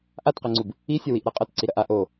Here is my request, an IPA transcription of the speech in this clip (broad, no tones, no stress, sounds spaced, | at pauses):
ʔ a t q ɛ ŋ͡ǀ u b | i sʲ ɐ w i ʔ ɾ ɐ qʼ ɐ t ǀ i ɾ ɐ ʔ a ʔ o